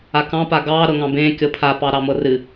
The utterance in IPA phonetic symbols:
a k ɑ̃ p a ɡ ɑː ɾ ɤ ŋ ɑ̃ b ẽː kʲ ɤ pʰ a p ɑ ɾ ɑ m ɤ r ɨ

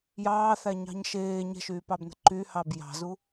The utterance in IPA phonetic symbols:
j ɑː θ æ ɲ ɑ̤ ɲ ʃ eː ɲ ɛ̤ ʃ yː p ɑ b n ə̤ ǃ y h ɑ b j ɑ̤ z u

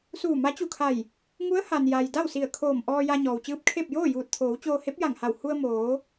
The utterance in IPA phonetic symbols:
s uː˧˩ m a˧˥ t͡ɕ u˧˩ kʰ a˧˩ j | ŋ u˧˥ ə̯ h a˩ n j a˩ j d a˥˨ w s i˧˩ ə̯ kʰ oː˧˩ m ʔ ɔː˧ j a˧ ɲ ɔː˩ w t͡ɕ ɯː˧˥ p̚ kʰ e˥˨ p̚ j oː˥˨ j uː˧˩ t̚ t̪ʰ oː˩˧ w t͡ɕ oː˧ h e˧˥ p̚ j a˧˩ ŋ h a˧˩ w h u˧ ə̯ m oː˩˧

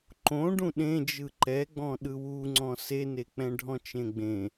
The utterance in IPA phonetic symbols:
ǃ õ ɖ ũ ɗ ẽ d͡ʒ ɯ ǃ ɛ ɡ͡b ɔ̃ ɗ ɯ w u ŋ͡ǀ ɔ̃ s e n e k͡p ɛ̃ ɖʱ ɔ̃ t͡ʃ ẽ ɡ͡b ẽ

